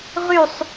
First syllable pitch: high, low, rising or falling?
falling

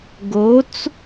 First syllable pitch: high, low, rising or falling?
rising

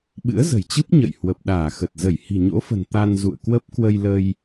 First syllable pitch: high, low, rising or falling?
rising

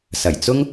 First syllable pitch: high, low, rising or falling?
low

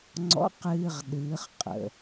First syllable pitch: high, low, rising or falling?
rising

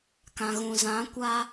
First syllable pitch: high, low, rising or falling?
low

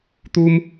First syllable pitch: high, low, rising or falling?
high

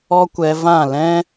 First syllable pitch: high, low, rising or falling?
high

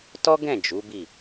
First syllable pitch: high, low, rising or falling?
high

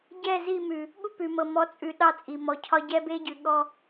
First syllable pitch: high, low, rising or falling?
falling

